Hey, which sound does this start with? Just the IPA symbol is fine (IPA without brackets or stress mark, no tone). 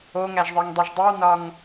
o